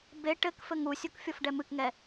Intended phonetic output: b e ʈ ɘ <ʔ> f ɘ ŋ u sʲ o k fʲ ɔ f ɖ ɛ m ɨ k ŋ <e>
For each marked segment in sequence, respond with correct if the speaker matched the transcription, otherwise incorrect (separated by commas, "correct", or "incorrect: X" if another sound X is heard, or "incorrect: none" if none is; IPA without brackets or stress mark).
incorrect: k, incorrect: ɛ